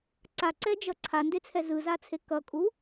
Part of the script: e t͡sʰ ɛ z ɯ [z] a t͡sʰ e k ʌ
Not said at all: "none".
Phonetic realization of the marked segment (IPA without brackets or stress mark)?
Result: z